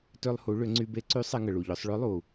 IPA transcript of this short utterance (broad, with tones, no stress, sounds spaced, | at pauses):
t ø˧ lˠ h u˩˧ ɭ ʏ˩˧ ŋ͡ǀ y˧ b e˧˥ ǀ y˧˥ sˤ e˧ ŋ ə˩ ɭ u˩ ʎ œ˩˧ sˤ ɭ ø˧˥ lˠ u˩